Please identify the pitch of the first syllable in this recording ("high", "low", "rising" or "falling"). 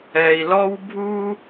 low